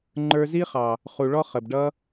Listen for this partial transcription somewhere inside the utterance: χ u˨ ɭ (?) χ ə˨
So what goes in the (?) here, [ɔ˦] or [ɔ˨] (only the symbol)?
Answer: ɔ˦